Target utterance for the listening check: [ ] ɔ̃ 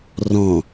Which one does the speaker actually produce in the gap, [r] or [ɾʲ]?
r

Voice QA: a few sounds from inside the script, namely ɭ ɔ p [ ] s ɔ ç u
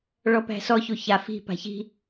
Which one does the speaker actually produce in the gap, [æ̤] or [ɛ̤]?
æ̤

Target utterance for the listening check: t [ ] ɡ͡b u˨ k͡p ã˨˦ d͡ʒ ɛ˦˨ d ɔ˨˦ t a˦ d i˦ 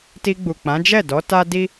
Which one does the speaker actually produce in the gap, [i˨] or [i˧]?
i˧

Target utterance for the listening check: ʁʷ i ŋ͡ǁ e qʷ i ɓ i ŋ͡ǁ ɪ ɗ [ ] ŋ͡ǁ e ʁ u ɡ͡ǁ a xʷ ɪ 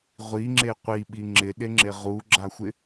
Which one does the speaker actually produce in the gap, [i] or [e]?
e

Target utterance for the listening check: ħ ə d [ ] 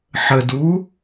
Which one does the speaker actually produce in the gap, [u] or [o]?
u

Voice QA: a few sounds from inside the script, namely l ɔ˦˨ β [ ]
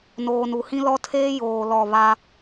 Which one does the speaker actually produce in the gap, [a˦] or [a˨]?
a˦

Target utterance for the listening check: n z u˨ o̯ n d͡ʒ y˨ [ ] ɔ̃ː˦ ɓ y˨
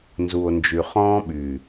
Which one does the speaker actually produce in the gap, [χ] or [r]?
χ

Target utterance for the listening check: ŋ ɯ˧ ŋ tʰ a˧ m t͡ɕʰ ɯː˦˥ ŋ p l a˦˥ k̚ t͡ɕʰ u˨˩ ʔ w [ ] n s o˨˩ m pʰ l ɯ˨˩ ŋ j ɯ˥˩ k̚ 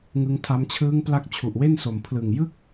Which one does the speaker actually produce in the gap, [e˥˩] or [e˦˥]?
e˥˩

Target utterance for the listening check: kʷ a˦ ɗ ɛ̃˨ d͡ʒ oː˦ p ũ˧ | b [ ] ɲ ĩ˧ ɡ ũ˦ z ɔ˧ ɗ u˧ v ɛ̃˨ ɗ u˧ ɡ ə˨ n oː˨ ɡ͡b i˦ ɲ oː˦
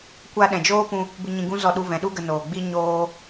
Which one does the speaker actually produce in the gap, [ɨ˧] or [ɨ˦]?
ɨ˧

